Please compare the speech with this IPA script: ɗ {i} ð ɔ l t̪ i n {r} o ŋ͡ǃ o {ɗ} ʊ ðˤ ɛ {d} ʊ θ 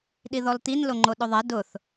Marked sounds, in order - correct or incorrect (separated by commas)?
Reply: correct, incorrect, correct, correct